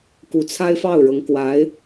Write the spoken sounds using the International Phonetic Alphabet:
k u˧˥ t͡sʰ a˥ ɪ̯ f ɑ˥˩ ʊ̯ ɻ ɤ˧˥ ŋ k w a˧˥ ɪ̯

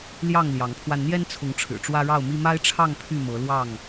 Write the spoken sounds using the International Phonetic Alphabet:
l j ɑ˥˨ ŋ l j ɑ˨˦ ŋ pʰ w a˧ n n̪ j ɛ˦ n t͡sʰ ʊ˨˦ ŋ ʈ͡ʂʰ ɻ̩˨˩ ʈ͡ʂ w ä˦ ɻ ɑ˥˨ ʊ̯ m i˦ m a˦ ɪ̯ ʈ͡ʂʰ ɑ˥˨ ŋ pʰ y˥˨ m ɤ˨˦ l w ɑ˥˨ ŋ

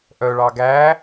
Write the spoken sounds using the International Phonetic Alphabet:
ʔ œ ɭ ɑ ɡ æː

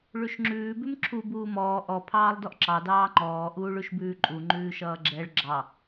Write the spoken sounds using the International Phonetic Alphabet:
ɭ ʉ ʃ ŋ͡ǁ ʉː b ʉ m ǁʰ u b uː m ɔː ʔ ɔ pʰ ɑː lˠ d ɔ ʔ ǁ ɑ d ɑː ŋ͡ǃ ɔː ʔ uː ɭ ʉ ʃ b ʉː ǃʼ u ŋ͡ǃ ʉː ʃ ʌː ɡ͡ǁ ɛ ɭ ɡ͡ǁ ɑ

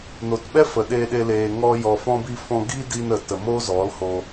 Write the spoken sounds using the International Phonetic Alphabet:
n o˨ t ɓ ɛ˦ f ə˨ ɗ e˧ ɗ e˧ l eː˧ ŋ ɔ˧ j ɔ˨ f ɔ̃˧ b i˧ f ɔ̃˧ ɡ i˦ d i˧ n ə˨ t ə˨ m o˦ z ɔ˨˦ l h o˧

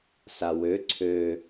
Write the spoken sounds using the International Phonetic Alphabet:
s a w ø ǀʰ ø

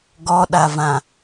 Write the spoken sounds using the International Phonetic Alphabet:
ɡ ɔ ɗ a v ã

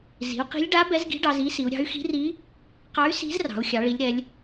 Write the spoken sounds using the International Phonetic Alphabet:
z i̤˩˧ u̯ q i̤˧˥ lʲ ɖ a˧˥ b ɛ˧˥ z ɡ i̤˧˥ ɖ ɑ˩˧ z i˧˥ s i˩˧ u̯ ɾʲ ɑ̤˧˥ y̯ x i̤˧˥ r i˧˥ | q ɑ˧˥ y̯ s i̤˧˥ z r ɑ̤˩˧ u̯ xʲ ɑ˩˧ ɭ i˩˧ lʲ ɾ ɛ˩˧ lʲ

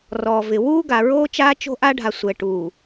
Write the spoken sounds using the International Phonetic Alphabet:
r ɔː˨ v ɪ˨ w uː˦ ɡ a˨ ɹ oː˦ t͡ʃ aː˦ t͡ʃ o̤˦ ʔ a˦ ɖʱ a˨ sʷ ɛ˨ ʈ uː˨

